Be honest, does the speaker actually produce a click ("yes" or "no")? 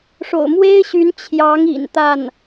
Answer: no